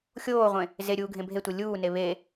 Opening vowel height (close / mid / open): mid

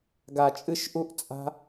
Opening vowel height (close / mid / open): open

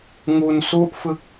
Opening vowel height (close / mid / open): close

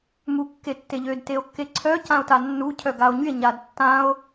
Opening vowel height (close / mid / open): close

